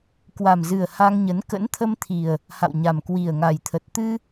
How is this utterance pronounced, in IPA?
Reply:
k w a˨˩ m z ɨ˨˩ ə̯ h a˧ ŋ ɲ ə˨˦ n k ə̰˧˥ n t̪ʰ ə˧ m t̪ʰ i˨˩ ə̯ | h a̰˧˨ w ɲ a˨˩ m k w i˨˩ ə̯ ŋ a˨˩ j t̪ʰ ə˨˩ t̚ t̪ ɨ˧

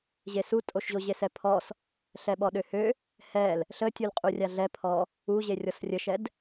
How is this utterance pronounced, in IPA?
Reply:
ʑ e s u tʼ o ʃ ʑ o ʑ e s ɛ pʰ ɔ s | ɬ ɛ ɓ ɔ ɗ ø h ø | h ɛ l | ɬ ə tʲ u l qʼ u rʲ a ɮ ɛ pʰ ɔ | u ʑ e rʲ ɔ s rʲ ə ʃ ɛ d

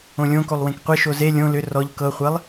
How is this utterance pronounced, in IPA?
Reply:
õ lʲ õ k o lˠ w ẽ k qʷ e ʃ o z e lʲ õ l ʏ r ɔ ʎ k ɤ χʷ e lˠ

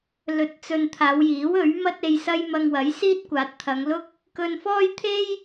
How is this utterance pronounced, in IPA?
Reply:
l ɵ˧ t̚ t͡s ɵ˧ n t̪ʰ aː˨˧ w j iː˨˥ w ɵ˨˥ ɥ m ɐ˥ t̚ e˧ j s ɐ˥ j m ɐ˧ ŋ w ɐ˨˥ j s iː˥ t̚ kʷ aː˨˥ t̚ t̪ʰ ɐ˨˧ ŋ l ʊ˥ k̚ | k ɵ˧ n f ɔː˥ j t̪ʰ e˥ j

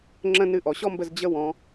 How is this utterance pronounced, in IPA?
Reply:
ŋ͡ǁ ə̃˧ n ɨ˧ ʔ ɔ˩ ɕ ɔ˥ m b ə˧ z d͡ʑ ə˧˥ w ɔ̃˩˧

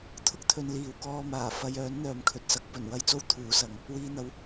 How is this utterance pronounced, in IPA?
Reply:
t̪ʰ ʊ˥ k̚ t̪ʰ ɵ˧ n l iː˨ w k ɔː˧ m aː˨˩ f ɐ˧ j œː˨˥ n n̪ œː˨ m kʰ ɵ˨ t̚ s ɐ˨˥ k̚ p ɵ˨˩ n w ɐ˥ j t͡s o˥ w t̪ʰ uː˨˥ s ɐ˨˧ ŋ | w iː˧ n̪ ɐ˨˥ w

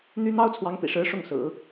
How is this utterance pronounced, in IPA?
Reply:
n̪ y˥ n̪ ɑ˥ ʊ̯ t͡sʰ w ɑ˧˥ ŋ p ḭ˨˩ ʂ ɻ̩˧˥ ʂ ʊ˥˩ ŋ s ɹ̩˨˩˦

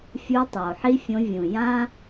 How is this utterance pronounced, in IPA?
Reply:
fʲ u˧˥ tˤ oː˩ ħ i˥ fʲ õ˧˥ vʲ ũ˩ j ã˥

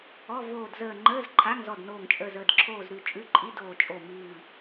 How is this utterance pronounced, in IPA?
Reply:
ɔ˧˥˧ v oː˧˩ d z əː˧˩ ŋ͡ǃ əː˧˥˧ z ǃʰ a˧˥˧ ŋ z ɔ˧˩ d n oː˧˩ ŋ t͡ʃʼ əː˧˩ z əː˧˩ d ǁʰ oː˧˩ z ɾ ʉ˧˩ t͡ʃʼ ʉ˧˥˧ ǃʼ i˧˥˧ d oː˧˩ t͡ʃʼ o˧˩ m ʉː˧˩

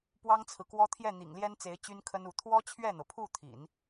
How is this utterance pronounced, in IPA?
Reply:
p w ɑ˥ ŋ t͡sʰ ɹ̩˨ k w ɔ˥ t̪ʰ j ɛ˥˩ n̪ ḭ˨˩ ŋ l j ɛ˥ n t͡s e˧˥ ɪ̯ t͡ɕ y˥ n kʰ ə˥ n u˧˥ t̪ʰ w ɔ˥ t͡ɕʰ ɥ ɛ˥˩ n̪ ɤ˩ pʰ u˥˩ t̪ʰ ḭ˨˩˦ n

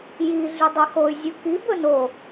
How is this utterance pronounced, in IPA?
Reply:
j i ɮ ʉ dˤ ɛ x o y̯ zʲ u k i b ɵ n o

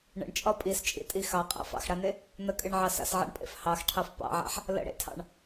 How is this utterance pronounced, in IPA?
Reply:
ɳ ə̰ ɳ t͡ʃʼ ɒ pʼ i s t͡ʃʼ ḭ tʼ i x ɑ qʼ a̰ f ɑ̰ x ɽ a n e | n ə kʼ ɨ ɳ ʕ ɑ s a̰ s ʕ a̰ ɳ pʼ ḛ f h ɑ x ʈʰ ɑ f p ɑ̰ ʕ a̰ ħ | l ə̰ ɽ ḛ tʰ ɑ̰ ɳ

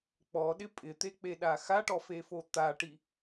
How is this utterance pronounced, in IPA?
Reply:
k͡p ɔ ɗ ɪ pʼ ɪ t̪ e k͡p e ɗ a x a ʈ ɔ f e f o t̪ a ʈ i

